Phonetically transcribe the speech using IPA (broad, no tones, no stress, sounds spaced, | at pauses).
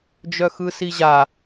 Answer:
d͡ʒ œ x ɯ s i ʑ a